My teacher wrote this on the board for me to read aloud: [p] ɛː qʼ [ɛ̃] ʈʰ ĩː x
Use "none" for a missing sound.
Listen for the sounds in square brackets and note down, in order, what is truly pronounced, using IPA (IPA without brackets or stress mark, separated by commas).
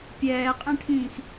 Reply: pʲ, ɛ̃